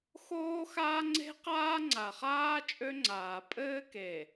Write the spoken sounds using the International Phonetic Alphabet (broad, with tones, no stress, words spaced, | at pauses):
xoː˦xaː˦ŋ͡ǀe̤˦qaː˦ ŋ͡ǀa˨χaː˦ t͡ʃʼø˦ŋ͡ǀaː˨ pʼɘː˦ke˨